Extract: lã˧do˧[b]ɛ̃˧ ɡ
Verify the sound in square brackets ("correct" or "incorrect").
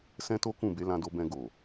correct